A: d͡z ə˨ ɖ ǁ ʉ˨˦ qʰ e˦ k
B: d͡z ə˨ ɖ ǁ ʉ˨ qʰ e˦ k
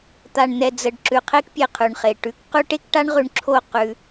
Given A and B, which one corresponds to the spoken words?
B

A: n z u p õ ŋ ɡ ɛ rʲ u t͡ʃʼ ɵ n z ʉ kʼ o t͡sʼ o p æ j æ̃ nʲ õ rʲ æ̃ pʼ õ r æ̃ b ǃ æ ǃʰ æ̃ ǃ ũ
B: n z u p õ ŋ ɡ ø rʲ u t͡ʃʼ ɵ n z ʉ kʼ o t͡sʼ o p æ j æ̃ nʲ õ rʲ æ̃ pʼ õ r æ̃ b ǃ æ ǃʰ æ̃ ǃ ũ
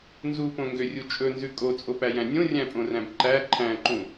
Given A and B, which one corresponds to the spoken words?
B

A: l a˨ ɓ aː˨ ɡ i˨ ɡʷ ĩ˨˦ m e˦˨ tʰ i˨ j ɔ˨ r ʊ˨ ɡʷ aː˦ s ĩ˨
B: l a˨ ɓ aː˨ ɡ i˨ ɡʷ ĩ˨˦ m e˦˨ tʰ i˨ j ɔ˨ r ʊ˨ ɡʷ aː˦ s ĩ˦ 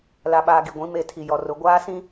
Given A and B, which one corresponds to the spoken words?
B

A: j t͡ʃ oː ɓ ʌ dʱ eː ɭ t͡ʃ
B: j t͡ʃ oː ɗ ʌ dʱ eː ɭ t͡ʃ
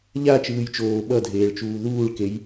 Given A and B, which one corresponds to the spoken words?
A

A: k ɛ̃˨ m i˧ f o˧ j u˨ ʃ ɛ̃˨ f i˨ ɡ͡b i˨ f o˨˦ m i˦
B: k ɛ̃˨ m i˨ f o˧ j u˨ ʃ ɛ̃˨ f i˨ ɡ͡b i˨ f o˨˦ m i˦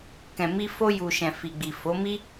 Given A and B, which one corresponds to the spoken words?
A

